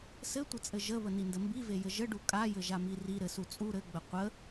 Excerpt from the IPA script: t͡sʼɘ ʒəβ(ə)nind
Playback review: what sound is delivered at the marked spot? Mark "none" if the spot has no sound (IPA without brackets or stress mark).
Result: ə